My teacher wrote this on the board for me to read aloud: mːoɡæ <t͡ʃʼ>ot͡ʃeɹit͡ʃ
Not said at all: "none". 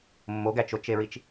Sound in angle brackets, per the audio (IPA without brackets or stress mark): t͡ʃ